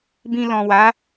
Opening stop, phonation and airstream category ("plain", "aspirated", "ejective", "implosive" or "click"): plain